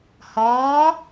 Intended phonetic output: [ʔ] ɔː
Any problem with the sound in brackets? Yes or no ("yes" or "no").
yes